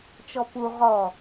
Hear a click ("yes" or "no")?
no